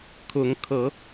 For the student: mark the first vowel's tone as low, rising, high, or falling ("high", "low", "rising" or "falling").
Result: rising